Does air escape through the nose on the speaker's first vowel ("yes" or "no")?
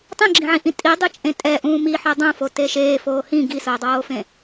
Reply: yes